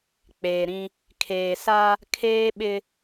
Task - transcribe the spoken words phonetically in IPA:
k͡p eː˨ ɾ ĩ˦ | kʰ eː˨ s a˦ | kʰ eː˦ ɓ ɪ˦

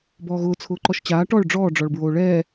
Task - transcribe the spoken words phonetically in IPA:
b ɔː ɣ ʊː t͡sʰ ʊː ǃ ɔ ʃ t͡ɕ aː ʈ ɔ ɭ ɖ͡ʐ ɔː ɖ͡ʐ ɔ ɭ b ɹ oː ɭ ɛː

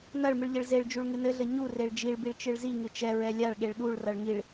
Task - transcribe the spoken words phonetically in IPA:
n ɐ ɭ m ɨ ɭ ʎ ɘ ɭ z e ɭ d͡ʒ u ɭ ŋ ɨ n ɘ ɮ ɘ ɲ u r e ɭ d͡ʒ i ɭ b i ɭ t͡ʃ ɨ ɭ z i ŋ ɨ t͡ʃ ɛ ɹ ɛ lʲ a ɭ ɠ e ɭ ɗ u ɭ r ɐ ɭ ŋ i ɭ

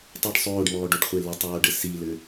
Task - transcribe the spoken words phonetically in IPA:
tˤ ɘ ɖ sˤ oː ɖ m ɔː ɖ o ɖ χʷ e l ɘ tˤ oː ɖ ɘ s i l ɘ

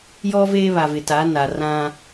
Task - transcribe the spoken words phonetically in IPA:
j ɔ˦ v eː˦ β a˨ v ɪ˨ t a˨˦ n a˨ r ã˦

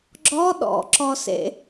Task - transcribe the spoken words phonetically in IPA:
ɡ͡ǁ ɔ ɗ ɔ̰ ǁ ɔ s ḛ

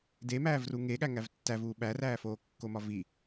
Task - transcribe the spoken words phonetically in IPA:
d e m æː v r u ŋ e ɠ æ ŋ æ v tː æ v uː ɓ æ r æː f oː kː o m ɒ v i

